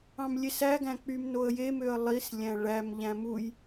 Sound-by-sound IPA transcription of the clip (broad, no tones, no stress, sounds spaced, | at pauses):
ɑ̃ m lʲ e s æ ɡ æ̃ k͡p y m n o ə̯ j e m ø ə̯ lˠ i s lʲ æ̃ ɭ æ m ʎ æ̃ m u j